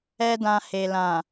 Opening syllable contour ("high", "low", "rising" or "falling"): high